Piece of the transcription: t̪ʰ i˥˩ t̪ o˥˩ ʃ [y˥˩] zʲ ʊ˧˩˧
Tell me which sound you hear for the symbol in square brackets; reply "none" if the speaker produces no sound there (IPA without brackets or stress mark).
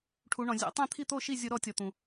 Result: i˥˩